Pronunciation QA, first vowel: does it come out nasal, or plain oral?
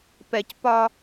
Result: oral